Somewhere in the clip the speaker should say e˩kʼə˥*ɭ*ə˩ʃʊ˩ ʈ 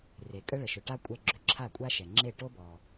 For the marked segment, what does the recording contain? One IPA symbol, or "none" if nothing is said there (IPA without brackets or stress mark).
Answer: ɭ